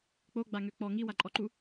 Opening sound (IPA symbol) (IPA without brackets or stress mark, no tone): k͡p